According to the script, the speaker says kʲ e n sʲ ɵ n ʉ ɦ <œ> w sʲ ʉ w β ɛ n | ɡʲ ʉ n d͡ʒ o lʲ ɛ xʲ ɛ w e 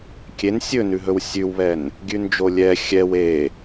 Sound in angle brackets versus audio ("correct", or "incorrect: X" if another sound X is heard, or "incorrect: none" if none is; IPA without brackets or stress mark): incorrect: ɵ